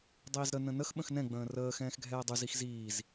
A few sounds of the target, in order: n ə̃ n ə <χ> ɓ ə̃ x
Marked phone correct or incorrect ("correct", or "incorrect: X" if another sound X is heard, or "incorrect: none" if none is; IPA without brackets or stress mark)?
incorrect: x